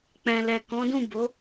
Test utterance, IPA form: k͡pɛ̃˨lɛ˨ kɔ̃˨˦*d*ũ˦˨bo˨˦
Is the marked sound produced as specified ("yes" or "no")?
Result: yes